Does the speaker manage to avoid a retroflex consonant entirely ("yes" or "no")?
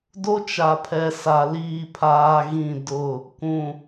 yes